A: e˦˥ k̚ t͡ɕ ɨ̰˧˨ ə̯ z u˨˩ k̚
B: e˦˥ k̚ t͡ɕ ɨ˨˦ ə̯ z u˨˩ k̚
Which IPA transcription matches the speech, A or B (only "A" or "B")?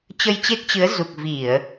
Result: B